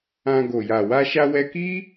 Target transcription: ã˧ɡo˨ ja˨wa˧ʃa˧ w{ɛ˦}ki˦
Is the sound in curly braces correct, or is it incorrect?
incorrect